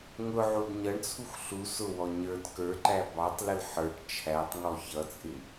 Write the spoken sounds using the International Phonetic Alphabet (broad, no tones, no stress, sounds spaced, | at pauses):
ŋ ʊ ʕ u d ɲ ʌ ɳ t͡sʰ u x ɬ u s ʊ w ɔ ɲ ə˞ d k ə˞ ǃ æ b ɑ tˤ l ə l ħ ə˞ ʈ t͡ʃʰ æ tˤ ŋ ɔ ç ʌ t͡sʼ ɪ